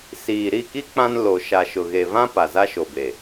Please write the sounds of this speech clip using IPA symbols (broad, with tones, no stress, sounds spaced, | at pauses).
s iː˨ ɾ i˦˨ k i˦ k͡p ã˦ n l o˨ ʃ a˨ ʃ ʊ˨ ɣ e˨ v ã˦ p a˨ z a˦ ʃ o˨ b e˨